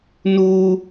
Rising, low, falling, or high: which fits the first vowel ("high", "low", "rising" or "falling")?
high